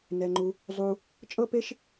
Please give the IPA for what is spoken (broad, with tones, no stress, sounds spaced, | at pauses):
n ɛ˧ ŋ͡ǃ u˧ | zˤ u˧ | t͡ʃʼ ɤ˦ p e˦ ʃ